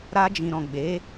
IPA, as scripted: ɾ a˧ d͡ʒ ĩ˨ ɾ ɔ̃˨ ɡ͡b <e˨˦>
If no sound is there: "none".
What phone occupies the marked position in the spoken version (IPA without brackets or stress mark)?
e˨˦